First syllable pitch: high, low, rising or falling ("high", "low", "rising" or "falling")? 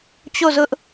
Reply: falling